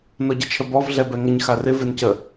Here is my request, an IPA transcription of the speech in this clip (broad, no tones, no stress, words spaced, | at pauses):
nɔɟɪt͡ʃʰəbɔv ɮɛbɛŋəɲ xarɪ vencə